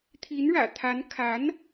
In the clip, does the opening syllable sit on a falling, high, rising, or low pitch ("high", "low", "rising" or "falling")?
rising